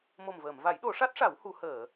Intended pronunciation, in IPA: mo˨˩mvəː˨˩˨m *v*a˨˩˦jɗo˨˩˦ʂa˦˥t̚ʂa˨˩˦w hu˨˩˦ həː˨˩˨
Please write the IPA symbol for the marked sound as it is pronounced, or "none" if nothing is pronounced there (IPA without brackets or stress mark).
v